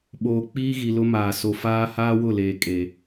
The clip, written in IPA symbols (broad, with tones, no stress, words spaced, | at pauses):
ɓoː˨ k͡piː˦ɣi˨lʊ˦maː˨ so˨faː˦ haː˦wʊ˦˨leː˨ kʼe˨